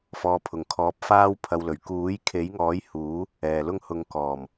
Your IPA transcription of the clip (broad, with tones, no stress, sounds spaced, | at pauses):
f ɔː˧ pʰ ʊ˨ ŋ kʰ ɔː˧ p̚ f aː˥ w pʰ ɐ˧ w l ɵ˨˩ ɥ k uː˨˥ j kʰ e˨˥ j ŋ ɔː˨˥ j h uː˨˥ | ɛː˨ l ʊ˥ ŋ h ʊ˧ ŋ k ɔː˨˩ m